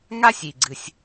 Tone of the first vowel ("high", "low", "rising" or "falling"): high